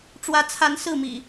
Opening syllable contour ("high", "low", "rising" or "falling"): rising